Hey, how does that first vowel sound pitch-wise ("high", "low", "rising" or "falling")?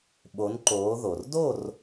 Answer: rising